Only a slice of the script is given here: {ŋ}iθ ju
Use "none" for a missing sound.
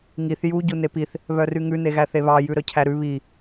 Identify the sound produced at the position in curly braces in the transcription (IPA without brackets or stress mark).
ŋ